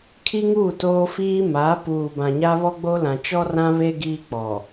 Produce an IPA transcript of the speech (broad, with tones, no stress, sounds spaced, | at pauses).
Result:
kʰ i˦ ŋ uː˦˨ t oː˦ f iː˦ m aː˨˦ p uː˨ b ã˨ ɲ a˦ β ɔ˦ ɡ͡b o˦ l ã˨ t͡ʃ ɔ˦ r ã˦ β e˦ ɡ iː˦ k͡p ɔ˨